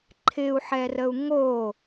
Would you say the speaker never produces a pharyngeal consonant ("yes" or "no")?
no